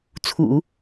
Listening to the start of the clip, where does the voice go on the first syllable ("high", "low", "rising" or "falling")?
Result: low